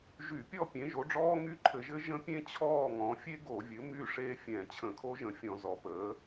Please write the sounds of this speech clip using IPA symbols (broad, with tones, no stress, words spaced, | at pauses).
ʒy˧˩˧pʲɔ˥˨ pʲẽ˩˥ʒo˩˥ɖ͡ʐɔː˦˥ ŋy˦˥ǃʰɘ˧˩˧ʒɘ˦˥ ʒə̃˦˥pʲẽ˦˥ t͡ɕʰɔː˥˨ŋɔ̃˩˥ fʲe˦˥ɡo˧˩˧vʲɘ˩˥ my˥˨ʂe˦˥ fʲɛ̃˧˩˧ t͡ɕʰə̃˧˩˧kʰo˦˥ʒə̃˧˩˧ fʲɔ̃˧˩˧ zɔ˩˥pəː˩˥